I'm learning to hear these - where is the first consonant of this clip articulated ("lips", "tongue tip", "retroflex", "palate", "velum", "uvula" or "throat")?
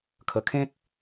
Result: velum